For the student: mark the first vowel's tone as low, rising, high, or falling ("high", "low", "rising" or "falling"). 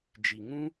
low